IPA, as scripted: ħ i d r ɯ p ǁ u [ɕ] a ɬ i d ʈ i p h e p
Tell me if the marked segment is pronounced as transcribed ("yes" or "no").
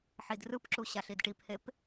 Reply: yes